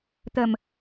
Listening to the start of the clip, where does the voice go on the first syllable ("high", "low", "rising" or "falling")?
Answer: low